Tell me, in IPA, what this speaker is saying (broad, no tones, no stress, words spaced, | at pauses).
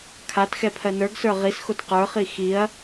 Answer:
kʰatxɛpʰɜ nə˞ɡsə˞ ʁisxot qə˞χi xiɐ̯